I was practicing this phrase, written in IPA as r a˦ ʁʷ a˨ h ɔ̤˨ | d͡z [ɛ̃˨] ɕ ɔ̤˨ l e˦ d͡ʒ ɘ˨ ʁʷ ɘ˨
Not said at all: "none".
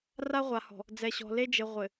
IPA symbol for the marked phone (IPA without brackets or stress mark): ɛ˨